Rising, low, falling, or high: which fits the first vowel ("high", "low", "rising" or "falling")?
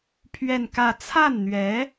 falling